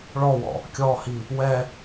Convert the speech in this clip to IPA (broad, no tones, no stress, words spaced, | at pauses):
ɭɔwɔ̰ | kʲɔhi | wɛ